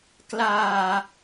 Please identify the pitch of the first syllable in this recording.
low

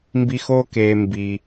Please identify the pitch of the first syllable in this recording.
high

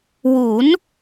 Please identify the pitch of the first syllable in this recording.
rising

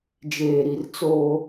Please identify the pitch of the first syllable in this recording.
low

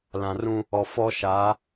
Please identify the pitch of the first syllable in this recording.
low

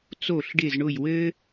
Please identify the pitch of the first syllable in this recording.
falling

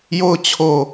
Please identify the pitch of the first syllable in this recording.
falling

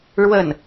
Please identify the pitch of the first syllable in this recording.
falling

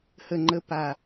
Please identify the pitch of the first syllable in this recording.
low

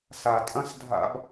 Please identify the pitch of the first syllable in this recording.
low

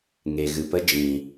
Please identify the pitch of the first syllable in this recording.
low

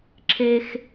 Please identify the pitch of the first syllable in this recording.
high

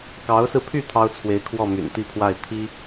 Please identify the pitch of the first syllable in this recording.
rising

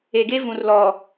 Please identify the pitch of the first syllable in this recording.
low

